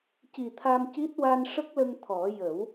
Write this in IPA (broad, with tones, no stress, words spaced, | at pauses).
ci˨˩t̪ʰa˧mci˦˥t̚ wa˧nʂə˦˥k̚lə˧ŋ t̪ʰɔ˨˩˦ jə˨˩˦w